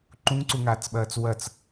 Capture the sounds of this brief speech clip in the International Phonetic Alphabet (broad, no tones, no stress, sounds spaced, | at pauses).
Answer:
ǃ ũ ŋ ǀ u ŋ aː t͡s ɓ ɐː t͡s w ɐ t͡s